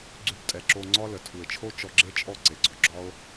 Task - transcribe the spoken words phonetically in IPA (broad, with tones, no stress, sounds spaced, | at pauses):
ɡ͡ǀ ʉ˧ b tʼ ɛ˨ ǁ o˧ ŋ͡ǀ ɒ˦ l ə˨ tʰ u˨ e̯ t͡ʃʰ o˦ t͡ʃ ɔ˧ ɡ͡ǁ e˦ t͡ʃʼ ɔ˦˨ ǀ e˨ ɡ͡ǀ ɔ˨ ɡ͡ǁ ɒ˦ o̯